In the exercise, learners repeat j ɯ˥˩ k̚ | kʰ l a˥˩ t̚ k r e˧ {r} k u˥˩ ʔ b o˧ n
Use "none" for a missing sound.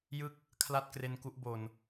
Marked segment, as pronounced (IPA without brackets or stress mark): n